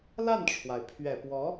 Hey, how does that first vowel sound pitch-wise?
falling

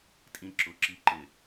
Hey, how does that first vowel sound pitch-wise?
high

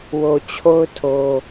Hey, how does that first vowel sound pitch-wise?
low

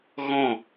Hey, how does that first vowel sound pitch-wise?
falling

